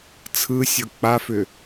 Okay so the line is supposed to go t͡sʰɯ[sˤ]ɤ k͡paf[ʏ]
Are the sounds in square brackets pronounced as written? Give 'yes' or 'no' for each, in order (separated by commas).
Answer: no, yes